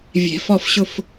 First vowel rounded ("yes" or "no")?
no